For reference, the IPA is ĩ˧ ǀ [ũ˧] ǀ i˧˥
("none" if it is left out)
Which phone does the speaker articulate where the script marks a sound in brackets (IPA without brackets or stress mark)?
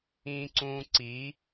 ũ˧